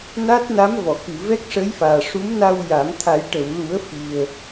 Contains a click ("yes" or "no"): no